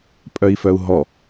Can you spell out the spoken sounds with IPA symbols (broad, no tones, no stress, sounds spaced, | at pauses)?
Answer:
pʼ œ i̯ f œ u̯ ɦ ɔ